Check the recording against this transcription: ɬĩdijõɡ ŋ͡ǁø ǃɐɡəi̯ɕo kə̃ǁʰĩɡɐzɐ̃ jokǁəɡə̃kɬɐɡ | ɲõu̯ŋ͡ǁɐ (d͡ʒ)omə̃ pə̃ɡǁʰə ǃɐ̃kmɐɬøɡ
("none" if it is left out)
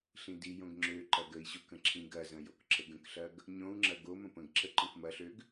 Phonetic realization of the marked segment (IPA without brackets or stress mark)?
ɡ